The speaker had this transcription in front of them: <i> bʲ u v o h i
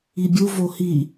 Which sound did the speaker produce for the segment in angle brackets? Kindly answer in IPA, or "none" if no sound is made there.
i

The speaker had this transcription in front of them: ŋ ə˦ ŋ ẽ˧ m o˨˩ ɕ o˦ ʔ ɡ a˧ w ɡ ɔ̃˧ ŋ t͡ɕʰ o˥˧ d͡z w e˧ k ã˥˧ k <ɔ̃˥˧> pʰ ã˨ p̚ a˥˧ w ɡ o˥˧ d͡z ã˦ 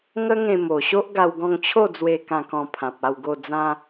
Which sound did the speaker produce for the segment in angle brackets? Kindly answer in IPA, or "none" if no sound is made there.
ɔ̃˧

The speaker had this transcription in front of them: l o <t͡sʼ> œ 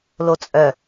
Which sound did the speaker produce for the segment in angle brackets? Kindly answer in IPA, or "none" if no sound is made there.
t͡sʼ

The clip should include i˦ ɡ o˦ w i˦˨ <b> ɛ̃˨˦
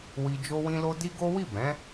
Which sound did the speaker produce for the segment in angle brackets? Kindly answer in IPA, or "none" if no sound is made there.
b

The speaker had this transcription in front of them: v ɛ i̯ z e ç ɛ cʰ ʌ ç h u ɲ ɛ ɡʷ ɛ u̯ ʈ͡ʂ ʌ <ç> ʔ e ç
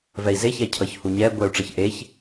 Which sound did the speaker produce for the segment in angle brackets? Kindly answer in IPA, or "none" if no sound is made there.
ç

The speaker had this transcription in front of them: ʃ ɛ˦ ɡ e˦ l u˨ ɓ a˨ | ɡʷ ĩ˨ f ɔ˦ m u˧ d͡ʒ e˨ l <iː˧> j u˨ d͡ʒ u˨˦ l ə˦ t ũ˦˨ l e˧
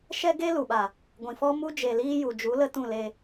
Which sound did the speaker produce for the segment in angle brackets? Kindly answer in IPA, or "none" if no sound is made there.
iː˧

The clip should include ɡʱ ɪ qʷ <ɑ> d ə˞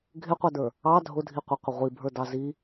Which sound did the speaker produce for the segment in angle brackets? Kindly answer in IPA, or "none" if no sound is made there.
ɑ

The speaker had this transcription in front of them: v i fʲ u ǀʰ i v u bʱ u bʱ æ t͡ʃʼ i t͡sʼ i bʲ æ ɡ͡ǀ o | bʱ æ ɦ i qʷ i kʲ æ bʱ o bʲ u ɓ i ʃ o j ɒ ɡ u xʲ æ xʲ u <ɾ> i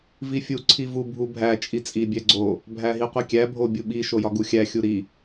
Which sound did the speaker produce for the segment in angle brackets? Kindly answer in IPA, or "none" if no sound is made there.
ɾ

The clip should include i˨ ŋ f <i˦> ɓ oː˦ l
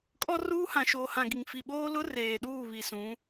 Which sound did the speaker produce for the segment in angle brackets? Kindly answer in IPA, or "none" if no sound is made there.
i˨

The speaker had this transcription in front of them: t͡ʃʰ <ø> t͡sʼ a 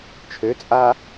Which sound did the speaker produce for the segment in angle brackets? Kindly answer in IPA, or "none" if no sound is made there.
ø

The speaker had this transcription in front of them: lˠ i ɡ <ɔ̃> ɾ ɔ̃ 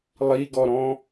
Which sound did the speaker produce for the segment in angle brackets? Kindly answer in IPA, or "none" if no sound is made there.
ɔ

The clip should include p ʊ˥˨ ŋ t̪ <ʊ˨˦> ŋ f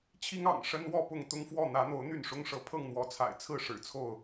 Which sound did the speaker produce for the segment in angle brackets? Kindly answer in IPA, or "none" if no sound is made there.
ʊ˦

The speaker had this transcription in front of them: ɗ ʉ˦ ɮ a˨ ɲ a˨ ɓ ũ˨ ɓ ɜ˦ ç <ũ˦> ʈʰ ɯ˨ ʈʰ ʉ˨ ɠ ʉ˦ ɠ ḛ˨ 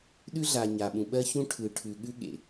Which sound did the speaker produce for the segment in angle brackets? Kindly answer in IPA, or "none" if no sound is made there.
ũ˦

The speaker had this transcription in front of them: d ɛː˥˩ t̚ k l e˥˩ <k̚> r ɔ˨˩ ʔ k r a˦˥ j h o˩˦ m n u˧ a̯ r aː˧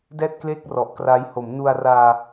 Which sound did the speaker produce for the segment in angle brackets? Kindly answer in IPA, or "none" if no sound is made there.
k̚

